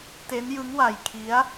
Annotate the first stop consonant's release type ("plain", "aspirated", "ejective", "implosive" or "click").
plain